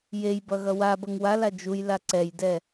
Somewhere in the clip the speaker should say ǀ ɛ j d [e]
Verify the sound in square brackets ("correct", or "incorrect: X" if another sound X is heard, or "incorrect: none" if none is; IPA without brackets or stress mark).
incorrect: ɛ